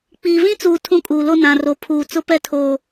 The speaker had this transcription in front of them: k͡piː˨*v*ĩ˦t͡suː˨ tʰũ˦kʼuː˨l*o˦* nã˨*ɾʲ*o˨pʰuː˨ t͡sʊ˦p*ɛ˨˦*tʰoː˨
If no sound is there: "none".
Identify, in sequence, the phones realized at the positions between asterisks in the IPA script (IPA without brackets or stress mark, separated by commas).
v, o˦, r, ɛ˦